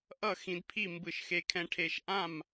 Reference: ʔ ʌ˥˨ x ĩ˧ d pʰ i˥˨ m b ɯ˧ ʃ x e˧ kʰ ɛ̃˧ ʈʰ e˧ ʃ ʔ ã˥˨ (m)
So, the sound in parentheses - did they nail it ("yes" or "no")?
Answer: yes